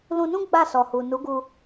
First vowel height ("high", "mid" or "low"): high